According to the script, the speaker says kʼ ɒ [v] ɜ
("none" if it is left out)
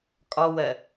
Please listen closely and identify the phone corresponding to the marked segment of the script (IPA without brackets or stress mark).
w